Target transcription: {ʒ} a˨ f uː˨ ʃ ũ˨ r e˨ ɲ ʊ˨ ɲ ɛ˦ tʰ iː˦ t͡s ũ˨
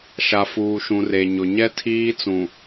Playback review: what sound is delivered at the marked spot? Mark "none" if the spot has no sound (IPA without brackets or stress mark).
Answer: ʃ